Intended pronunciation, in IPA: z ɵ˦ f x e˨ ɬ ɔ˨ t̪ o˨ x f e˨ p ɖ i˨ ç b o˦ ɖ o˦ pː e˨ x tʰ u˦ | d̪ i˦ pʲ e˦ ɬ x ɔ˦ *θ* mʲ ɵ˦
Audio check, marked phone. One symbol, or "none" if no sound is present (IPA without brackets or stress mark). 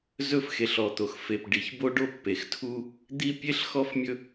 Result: f